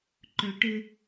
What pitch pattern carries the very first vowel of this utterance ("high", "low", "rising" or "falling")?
low